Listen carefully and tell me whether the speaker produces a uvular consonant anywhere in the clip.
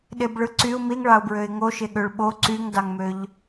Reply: no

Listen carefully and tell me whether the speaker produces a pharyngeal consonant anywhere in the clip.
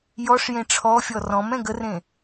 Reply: no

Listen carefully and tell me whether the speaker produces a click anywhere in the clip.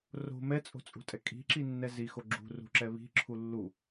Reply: yes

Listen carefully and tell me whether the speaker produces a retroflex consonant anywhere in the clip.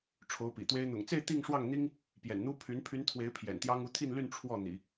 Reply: yes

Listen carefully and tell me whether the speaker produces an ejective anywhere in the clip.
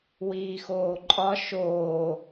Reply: yes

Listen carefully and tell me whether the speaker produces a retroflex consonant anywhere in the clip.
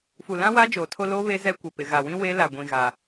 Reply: no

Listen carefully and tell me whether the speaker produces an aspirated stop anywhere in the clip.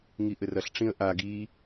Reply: no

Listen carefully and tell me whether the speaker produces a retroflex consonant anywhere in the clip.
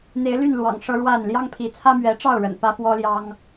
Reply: yes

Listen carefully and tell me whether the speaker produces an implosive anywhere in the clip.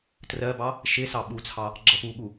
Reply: yes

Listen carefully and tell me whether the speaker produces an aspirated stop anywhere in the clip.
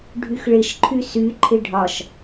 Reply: yes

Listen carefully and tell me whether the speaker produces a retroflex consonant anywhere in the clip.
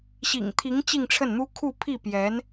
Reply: yes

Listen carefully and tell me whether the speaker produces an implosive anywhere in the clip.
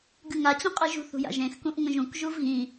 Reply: no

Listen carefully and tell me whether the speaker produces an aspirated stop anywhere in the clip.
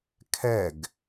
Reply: yes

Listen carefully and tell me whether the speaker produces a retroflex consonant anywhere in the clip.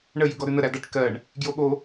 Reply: yes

